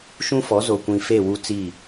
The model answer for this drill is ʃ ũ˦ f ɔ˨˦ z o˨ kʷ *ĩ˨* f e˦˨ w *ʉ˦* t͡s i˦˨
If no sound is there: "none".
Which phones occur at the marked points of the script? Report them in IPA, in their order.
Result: ĩ˨, u˦

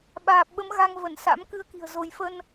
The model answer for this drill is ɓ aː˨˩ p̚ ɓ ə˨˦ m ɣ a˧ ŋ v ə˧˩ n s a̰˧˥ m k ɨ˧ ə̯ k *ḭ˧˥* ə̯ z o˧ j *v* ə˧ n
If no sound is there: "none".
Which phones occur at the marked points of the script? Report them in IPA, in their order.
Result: i̤˨˩, f

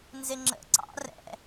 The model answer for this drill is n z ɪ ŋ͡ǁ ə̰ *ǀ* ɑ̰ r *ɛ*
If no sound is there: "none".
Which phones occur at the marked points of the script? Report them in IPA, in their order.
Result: ǀ, ɛ̰

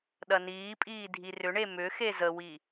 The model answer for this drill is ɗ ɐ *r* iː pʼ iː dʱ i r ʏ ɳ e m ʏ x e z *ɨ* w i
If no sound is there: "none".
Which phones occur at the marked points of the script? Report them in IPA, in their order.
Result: n, ə

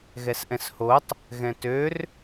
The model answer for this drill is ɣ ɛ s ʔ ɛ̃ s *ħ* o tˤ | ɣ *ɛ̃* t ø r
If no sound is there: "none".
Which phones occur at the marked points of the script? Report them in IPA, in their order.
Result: h, ɛ̃

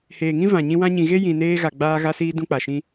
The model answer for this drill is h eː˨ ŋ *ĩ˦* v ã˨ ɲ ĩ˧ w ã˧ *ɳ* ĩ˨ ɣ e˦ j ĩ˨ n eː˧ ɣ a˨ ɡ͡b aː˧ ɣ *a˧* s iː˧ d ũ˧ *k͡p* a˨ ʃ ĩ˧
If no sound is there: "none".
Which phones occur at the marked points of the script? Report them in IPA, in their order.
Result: ĩ˦, ɲ, a˧, k͡p

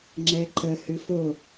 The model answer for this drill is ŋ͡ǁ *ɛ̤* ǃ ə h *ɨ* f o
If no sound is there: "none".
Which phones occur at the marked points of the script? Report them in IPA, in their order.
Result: ɛ, ɨ

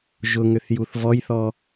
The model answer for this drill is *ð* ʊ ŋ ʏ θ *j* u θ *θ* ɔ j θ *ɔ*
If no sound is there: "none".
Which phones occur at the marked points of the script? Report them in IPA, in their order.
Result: ʒ, j, v, ɔ

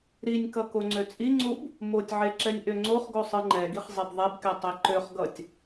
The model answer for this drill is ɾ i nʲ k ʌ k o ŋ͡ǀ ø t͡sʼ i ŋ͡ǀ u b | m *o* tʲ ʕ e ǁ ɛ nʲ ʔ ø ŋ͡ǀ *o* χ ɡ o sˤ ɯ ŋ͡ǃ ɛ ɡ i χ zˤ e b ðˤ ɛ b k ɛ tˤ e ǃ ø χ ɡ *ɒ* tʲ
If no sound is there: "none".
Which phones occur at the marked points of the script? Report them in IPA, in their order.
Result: o, o, ʌ

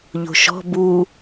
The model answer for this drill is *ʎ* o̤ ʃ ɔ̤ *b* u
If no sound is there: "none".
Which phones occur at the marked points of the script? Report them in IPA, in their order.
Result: ʎ, b

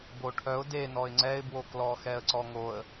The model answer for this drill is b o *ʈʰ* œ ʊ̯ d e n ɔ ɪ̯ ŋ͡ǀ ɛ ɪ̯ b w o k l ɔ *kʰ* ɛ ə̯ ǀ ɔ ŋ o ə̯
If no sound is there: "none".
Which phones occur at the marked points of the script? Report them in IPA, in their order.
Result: ʈʰ, x

